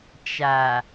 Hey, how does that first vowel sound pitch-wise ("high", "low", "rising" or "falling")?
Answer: low